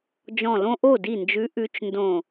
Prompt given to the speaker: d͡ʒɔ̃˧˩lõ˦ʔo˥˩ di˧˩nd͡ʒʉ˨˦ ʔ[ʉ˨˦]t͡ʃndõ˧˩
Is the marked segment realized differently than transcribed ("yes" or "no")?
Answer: no